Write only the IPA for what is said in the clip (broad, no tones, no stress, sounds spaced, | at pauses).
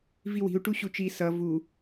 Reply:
v i w i̤ u̯ ʈ u ɕ u t͡ʃ i s ʌ v u